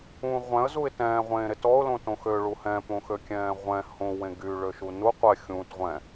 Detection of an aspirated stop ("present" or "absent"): absent